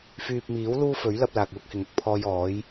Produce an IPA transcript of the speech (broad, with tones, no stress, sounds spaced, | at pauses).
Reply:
f yː˨ p̚ m iː˨˥ w l uː˥ f ɵ˨˥ ɥ l ɐ˧ p̚ l aː˨ k̚ w ʊ˥ k̚ h ɪ˨˥ ŋ ʊ˨˥ k̚ pʰ ɔː˧ j ɔː˨˥ j